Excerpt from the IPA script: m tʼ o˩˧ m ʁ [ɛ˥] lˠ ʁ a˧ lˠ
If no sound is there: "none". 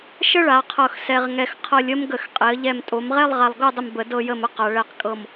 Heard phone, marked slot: ɛ˥˧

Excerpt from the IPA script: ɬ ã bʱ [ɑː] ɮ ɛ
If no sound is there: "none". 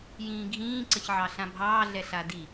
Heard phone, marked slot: ɑː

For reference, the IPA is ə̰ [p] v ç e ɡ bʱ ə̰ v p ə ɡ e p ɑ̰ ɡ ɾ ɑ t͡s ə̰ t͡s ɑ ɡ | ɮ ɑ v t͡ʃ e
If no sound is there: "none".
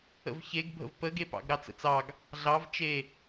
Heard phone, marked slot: none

